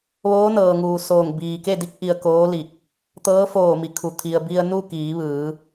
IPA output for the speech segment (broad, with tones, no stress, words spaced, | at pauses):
ʋoː˧˥nɤː˩ŋuː˩soː˧˩ŋ biː˩ke˥˨ di˧˥k̚ʔi˧ə̯koː˧˥ li˧˩k̚ | t̪ɤː˧˥foː˧˩mi˩kʰu˩ t̪ʰi˩ə̯ bi˧ə̯nu˥˨ kiː˩˧ʋɯː˩˧